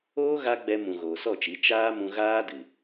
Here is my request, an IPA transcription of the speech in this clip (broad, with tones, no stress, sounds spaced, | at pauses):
oː˦ ɣ a˦ ɡ͡b ɛ˧ m ũ˨ ɣ oː˨ s ɔ˦˨ t͡ʃ i˨˦ t͡ʃ aː˦ m ũ˧ ɣ aː˦ d ɨ˨